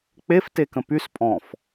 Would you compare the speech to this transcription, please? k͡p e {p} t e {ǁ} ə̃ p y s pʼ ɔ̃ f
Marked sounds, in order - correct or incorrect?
incorrect: f, incorrect: k

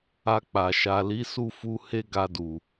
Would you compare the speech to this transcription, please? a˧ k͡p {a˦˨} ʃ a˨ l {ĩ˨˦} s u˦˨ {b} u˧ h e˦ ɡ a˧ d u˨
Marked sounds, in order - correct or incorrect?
incorrect: a˨, incorrect: i˨˦, incorrect: f

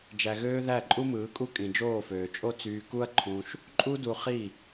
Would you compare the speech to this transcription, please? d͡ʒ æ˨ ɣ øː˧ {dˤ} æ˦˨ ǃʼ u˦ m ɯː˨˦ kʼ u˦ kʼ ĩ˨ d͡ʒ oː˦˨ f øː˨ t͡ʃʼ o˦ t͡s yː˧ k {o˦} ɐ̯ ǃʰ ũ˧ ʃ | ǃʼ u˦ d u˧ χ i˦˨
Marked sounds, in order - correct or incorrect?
incorrect: ð, incorrect: u˦

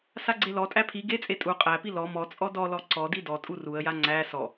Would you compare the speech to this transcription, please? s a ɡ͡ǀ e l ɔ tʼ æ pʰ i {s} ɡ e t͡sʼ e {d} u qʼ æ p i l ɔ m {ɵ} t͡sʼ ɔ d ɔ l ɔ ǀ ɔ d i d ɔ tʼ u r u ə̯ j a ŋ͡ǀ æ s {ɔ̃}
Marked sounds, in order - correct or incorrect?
incorrect: none, incorrect: tʼ, incorrect: ɔ, incorrect: ɔ

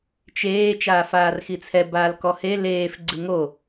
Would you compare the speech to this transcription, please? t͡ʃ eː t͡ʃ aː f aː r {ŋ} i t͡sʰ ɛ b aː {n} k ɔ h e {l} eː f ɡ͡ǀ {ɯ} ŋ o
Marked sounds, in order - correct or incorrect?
incorrect: x, incorrect: l, correct, correct

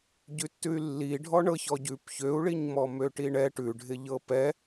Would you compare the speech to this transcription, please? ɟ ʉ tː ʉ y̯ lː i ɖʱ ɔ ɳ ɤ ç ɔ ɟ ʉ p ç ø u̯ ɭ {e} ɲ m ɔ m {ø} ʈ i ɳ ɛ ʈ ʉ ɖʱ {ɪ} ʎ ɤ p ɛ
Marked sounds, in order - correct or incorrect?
incorrect: i, correct, correct

